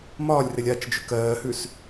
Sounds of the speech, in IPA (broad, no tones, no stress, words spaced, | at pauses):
mɒːlʲrɪlʲ at͡ʃd͡ʒʉk ɜːhʉs